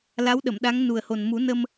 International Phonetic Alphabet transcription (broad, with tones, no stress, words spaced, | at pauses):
la˧˥wɗə˨˩˨mɗa˧˥ŋ nu˨˩ə̯ho˨˩n mu˨˩˦nə˧m